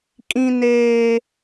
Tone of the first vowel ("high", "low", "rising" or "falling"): high